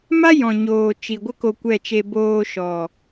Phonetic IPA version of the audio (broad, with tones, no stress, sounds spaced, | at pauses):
m a˦ j ɔ̃˨ ɲ oː˨ t͡ʃ i˨ ɡʷ ə˦ k o˧ kʷ ɛ˦˨ t͡ʃ e˧ b oː˧ ʃ ɔ˨